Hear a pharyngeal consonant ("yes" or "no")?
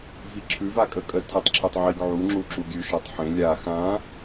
yes